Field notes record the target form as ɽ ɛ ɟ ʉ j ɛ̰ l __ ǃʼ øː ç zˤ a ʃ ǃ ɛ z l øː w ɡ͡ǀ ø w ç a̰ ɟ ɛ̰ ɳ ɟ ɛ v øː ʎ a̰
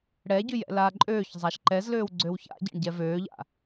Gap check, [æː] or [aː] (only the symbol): aː